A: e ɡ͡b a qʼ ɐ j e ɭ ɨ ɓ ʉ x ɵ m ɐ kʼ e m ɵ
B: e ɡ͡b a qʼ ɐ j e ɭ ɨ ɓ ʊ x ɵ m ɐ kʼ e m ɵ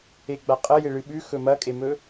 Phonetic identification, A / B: A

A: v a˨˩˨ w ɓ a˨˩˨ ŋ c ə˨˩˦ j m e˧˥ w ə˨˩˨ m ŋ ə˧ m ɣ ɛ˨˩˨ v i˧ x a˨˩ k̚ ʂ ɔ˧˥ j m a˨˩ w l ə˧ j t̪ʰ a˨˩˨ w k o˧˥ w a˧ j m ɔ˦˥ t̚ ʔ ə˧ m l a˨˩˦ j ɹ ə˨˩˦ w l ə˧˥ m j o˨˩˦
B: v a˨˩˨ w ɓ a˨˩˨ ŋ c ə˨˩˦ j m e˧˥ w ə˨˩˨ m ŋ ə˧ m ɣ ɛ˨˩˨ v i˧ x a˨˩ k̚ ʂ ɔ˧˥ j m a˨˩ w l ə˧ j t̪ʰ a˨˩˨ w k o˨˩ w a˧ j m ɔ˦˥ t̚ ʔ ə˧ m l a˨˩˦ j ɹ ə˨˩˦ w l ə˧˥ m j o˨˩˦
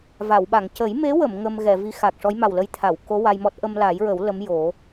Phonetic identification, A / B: A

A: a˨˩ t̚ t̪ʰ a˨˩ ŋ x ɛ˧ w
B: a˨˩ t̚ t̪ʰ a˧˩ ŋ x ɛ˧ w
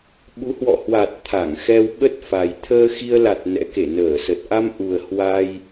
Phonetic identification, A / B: B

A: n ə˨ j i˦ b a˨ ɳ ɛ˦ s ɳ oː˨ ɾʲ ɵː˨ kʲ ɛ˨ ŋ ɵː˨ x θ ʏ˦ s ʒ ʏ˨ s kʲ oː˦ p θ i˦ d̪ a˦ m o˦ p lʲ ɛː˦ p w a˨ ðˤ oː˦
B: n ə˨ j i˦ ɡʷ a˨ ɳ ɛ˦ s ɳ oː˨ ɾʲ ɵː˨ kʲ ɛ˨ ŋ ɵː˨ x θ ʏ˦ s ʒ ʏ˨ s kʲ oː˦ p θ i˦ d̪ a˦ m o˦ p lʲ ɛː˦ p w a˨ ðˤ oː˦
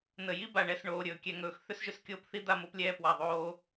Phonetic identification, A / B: A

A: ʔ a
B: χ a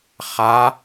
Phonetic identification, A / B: B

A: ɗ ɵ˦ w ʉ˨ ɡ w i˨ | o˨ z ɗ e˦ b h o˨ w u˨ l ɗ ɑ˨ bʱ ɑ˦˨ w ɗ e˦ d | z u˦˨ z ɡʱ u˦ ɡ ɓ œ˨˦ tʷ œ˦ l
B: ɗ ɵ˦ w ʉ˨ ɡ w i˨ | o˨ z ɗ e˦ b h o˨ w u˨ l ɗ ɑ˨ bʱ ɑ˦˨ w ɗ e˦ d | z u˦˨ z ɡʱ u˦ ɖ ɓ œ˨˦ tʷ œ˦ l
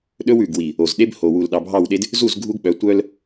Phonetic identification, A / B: A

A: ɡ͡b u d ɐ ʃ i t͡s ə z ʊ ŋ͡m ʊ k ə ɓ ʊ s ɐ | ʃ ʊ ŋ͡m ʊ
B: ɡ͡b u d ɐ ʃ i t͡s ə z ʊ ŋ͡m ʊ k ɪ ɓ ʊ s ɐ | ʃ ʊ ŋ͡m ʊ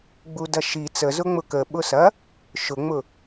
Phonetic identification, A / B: A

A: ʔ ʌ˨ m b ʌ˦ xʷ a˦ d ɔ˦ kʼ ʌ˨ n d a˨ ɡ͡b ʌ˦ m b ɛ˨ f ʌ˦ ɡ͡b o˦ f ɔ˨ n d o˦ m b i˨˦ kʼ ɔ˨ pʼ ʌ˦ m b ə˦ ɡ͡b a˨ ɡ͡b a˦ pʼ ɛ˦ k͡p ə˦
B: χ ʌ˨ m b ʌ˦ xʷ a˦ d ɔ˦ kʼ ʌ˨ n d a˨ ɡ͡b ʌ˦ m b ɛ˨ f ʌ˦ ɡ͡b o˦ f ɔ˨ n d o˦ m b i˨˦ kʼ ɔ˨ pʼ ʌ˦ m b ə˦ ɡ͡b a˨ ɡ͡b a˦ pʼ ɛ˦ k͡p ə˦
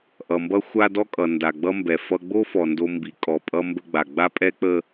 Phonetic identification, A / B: A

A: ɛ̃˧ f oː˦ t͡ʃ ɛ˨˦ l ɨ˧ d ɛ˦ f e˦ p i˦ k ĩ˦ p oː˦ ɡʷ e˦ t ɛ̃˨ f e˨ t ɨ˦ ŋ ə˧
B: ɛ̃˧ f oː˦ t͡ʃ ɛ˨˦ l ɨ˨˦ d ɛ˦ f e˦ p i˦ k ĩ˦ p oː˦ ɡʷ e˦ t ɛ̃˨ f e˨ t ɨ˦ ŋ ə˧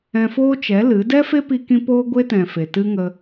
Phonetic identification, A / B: B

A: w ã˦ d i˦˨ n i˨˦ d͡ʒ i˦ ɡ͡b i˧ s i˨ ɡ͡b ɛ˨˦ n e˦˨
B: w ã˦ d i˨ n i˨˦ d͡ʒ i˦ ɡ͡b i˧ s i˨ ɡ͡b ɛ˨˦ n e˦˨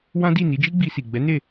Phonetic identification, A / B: A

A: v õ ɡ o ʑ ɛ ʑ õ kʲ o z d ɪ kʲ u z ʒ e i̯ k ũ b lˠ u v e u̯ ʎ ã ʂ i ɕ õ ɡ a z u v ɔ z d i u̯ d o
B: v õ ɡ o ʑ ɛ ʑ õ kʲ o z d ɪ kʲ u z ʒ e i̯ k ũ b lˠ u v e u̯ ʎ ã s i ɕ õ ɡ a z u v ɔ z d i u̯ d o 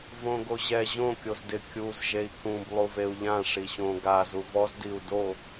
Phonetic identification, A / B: A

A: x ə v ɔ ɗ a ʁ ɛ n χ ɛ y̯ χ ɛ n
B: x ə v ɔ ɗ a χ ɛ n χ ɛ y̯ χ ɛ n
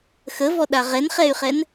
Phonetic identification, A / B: A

